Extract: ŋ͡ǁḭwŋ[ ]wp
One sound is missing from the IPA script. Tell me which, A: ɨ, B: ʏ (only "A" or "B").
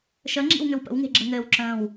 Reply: B